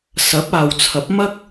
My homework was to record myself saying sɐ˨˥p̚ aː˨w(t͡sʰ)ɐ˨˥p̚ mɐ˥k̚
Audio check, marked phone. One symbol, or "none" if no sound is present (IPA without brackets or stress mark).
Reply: t͡sʰ